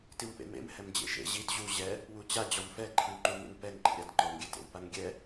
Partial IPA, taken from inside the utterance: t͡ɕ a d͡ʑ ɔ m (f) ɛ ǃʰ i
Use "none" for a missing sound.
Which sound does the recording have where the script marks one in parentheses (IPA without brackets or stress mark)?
f